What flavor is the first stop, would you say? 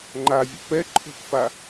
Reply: click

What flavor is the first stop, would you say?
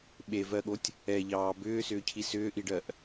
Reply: implosive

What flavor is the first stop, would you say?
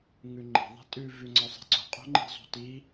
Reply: click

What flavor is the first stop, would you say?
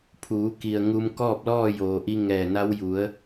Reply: aspirated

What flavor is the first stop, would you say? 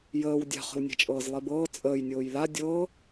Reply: plain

